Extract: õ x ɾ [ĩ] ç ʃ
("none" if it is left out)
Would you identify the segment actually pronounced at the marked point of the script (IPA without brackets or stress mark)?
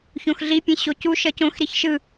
i